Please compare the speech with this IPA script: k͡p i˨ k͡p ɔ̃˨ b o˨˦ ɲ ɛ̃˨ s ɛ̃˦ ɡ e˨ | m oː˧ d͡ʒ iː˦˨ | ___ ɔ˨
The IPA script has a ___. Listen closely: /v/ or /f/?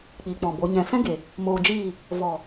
v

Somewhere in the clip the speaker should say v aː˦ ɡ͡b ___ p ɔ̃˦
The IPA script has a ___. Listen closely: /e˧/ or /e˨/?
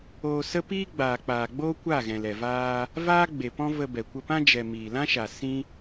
e˨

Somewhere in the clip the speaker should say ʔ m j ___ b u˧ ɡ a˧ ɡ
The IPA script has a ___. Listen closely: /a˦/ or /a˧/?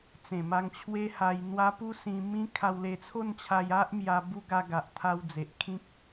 a˧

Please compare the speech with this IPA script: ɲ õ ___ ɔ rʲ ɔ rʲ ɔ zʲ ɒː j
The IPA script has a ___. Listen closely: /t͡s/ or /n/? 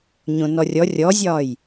n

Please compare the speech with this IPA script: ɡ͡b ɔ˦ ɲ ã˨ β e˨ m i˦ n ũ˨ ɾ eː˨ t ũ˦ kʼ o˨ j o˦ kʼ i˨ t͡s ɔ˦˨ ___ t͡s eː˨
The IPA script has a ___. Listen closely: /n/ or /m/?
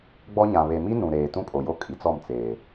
m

